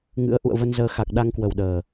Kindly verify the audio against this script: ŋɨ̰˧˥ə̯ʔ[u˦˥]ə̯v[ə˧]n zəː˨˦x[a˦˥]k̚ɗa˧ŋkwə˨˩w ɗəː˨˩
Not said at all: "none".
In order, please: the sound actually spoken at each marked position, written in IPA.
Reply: ṵ˧˨, ə˧, a˨˩

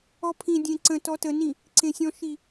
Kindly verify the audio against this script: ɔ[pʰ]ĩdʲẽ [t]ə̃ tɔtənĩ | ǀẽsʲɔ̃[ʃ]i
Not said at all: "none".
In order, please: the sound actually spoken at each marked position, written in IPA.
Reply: pʰ, ǀ, ʃ

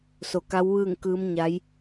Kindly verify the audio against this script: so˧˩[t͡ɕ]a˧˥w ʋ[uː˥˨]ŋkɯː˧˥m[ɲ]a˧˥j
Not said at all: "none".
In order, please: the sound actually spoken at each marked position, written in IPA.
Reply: k, ɯː˥˨, ɲ

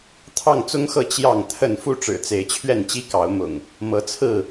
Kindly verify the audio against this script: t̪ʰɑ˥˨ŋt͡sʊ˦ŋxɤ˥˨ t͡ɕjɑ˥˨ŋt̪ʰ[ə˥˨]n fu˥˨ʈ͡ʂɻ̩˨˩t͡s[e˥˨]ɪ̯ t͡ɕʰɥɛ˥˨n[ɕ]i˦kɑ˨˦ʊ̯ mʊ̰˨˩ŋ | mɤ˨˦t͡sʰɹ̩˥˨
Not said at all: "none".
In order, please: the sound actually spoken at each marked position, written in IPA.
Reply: ə˥˨, e˨˦, t͡ɕ

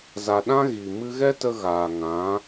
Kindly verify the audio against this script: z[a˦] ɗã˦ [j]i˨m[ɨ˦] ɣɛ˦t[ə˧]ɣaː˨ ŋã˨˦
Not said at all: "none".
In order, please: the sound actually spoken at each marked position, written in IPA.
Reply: a˧, ɣ, ɨ˦, ə˧

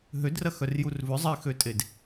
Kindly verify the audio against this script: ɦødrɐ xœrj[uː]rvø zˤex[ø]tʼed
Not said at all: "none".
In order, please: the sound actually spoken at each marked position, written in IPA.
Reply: u, ø

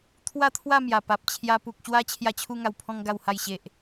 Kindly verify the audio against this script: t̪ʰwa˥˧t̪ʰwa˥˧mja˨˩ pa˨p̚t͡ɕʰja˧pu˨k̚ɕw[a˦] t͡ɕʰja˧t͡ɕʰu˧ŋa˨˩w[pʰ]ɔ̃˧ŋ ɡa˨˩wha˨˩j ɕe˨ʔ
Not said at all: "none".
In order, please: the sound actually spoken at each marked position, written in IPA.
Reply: a˦, pʰ

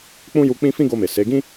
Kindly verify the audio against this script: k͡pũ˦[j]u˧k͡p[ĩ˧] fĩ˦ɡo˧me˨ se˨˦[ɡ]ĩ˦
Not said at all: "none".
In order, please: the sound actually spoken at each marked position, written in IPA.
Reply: j, ĩ˦, ɡ

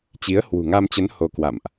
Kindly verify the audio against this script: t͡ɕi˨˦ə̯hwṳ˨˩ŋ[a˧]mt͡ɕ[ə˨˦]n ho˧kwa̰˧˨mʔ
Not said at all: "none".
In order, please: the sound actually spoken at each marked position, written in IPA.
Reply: a˧, ə˨˦

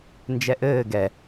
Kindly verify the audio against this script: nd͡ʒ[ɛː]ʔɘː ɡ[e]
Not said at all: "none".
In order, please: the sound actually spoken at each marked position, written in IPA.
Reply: ɛ, ɛ

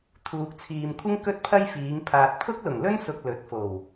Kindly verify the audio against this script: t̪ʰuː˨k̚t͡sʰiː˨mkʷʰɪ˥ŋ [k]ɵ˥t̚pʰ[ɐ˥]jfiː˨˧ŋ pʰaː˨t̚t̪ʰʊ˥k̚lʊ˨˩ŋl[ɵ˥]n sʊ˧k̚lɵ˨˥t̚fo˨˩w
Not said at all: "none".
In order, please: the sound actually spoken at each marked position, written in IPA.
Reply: k, ɐ˥, ɵ˥

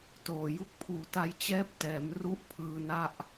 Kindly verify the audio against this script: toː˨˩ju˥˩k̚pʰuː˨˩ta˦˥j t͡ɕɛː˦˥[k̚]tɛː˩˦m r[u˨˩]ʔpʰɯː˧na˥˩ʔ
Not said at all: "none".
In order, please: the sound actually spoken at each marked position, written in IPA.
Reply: p̚, u˥˩

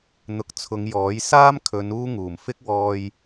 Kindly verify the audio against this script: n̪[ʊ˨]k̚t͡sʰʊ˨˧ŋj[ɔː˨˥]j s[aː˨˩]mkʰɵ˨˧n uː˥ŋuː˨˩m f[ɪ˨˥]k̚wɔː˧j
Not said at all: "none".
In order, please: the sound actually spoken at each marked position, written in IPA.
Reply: ʊ˨˥, ɔː˨˥, aː˥, ɪ˥

